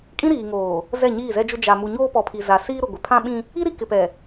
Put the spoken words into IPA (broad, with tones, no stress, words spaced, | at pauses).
kʼĩ˦ɾiː˨ŋoː˨ | zɛ˦˨ɲiː˦˨zɛ˦d͡ʒʊ˦ d͡ʒa˨ mu˨ɲoː˦pɔ˨ pʰi˨ za˨siː˦ɾʊ˨ ɡʷɪ˨pʰã˦ɓĩ˦ | i˦ɾi˨ kɪ˨ pɛ˨